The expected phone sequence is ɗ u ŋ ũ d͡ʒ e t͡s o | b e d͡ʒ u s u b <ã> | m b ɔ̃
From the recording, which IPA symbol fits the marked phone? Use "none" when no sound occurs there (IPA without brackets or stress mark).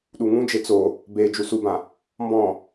ã